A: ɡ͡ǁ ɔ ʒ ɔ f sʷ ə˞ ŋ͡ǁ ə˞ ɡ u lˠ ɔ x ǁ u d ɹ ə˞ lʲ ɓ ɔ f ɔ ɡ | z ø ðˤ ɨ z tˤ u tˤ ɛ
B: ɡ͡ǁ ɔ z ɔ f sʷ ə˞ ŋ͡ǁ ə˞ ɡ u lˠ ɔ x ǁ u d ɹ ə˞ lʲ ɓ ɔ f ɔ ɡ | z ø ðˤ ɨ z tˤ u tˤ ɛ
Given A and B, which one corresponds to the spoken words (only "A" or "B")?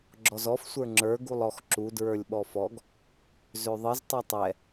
B